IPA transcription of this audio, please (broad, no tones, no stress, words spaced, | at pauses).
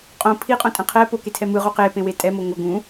qʼõ pʰiqʼõtʼɛ̃ qʰɛ poketʰɛ mɯʁo qepẽwe tʼɛmo ŋʷʌ ɡũ